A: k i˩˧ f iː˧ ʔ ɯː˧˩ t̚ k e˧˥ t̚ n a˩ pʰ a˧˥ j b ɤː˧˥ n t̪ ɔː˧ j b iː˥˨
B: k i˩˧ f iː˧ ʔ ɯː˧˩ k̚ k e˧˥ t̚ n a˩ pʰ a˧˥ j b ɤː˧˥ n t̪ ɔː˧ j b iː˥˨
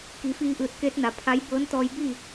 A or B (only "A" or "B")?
A